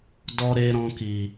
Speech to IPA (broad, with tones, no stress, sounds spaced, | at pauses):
d ɔ˧ ɾ e˧ ɾ ɔ̃˧ k i˨